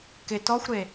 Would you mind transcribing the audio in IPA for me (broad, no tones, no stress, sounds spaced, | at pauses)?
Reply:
k ɪ t ɔ xʷ ɾ e